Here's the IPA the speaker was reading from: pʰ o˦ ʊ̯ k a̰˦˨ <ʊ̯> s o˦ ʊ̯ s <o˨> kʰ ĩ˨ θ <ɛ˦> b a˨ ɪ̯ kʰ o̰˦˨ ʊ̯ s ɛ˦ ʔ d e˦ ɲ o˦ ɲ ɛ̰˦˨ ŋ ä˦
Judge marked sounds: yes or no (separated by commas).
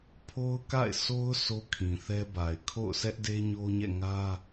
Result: no, no, yes